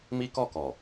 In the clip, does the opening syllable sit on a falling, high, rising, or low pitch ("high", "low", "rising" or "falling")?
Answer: high